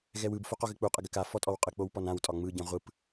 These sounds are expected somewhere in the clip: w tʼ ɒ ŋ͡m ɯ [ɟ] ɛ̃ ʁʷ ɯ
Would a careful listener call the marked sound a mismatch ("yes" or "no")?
no